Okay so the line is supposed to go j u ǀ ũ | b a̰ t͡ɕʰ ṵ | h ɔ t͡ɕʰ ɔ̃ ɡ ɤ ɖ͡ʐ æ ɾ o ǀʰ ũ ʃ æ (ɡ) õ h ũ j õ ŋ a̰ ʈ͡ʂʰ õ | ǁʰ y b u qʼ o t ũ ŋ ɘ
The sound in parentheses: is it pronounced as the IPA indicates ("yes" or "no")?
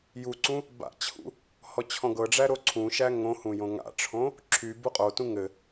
no